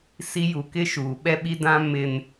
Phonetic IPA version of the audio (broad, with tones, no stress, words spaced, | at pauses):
si˨ ju˨kɪ˦ʃuː˨ ɓɛ˦ɓi˦dã˦ mɪ˨n